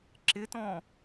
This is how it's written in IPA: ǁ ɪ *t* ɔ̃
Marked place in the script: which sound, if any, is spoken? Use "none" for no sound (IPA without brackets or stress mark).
t